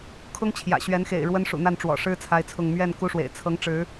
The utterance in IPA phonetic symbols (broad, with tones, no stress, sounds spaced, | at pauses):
kʰ ʊ˦ ŋ t͡ɕʰ j ä̰˨˩ ɕ ɥ ɛ˨˦ n x ḛ˨˩ ɪ̯ ɻ w ə˦ n ʂ ṵ˨˩ n̪ a˥˨ n ʈ͡ʂ w ɔ̰˨˩ ʂ ɻ̩˦ t͡sʰ a˦ ɪ̯ t͡sʰ ʊ˥˨ ŋ m ɥ ɛ˥˨ n k u˦ ʂ w ḛ˨˩ ɪ̯ t͡sʰ ɤ˨˦ ŋ ʈ͡ʂ ɻ̩˨˦